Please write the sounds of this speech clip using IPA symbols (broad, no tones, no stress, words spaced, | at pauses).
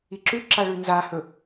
iǁʉǁa ɭʉnzahɵ